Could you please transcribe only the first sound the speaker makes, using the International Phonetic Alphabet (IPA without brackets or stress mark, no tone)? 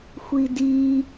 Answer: xʷ